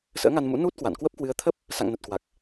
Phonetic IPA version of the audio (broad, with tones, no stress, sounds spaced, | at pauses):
s ə̰ː˧˥ ŋ a˧ n m ṵ˧˥ n u˦˥ t̚ k w a̰˧˨ n k w ə˦˥ p̚ k w ɨ˨˦ ə̯ t̪ʰ ə˦˥ p̚ | s a̰˧˨ ŋ n ə˨˩ t̚ k w a˨˩ k̚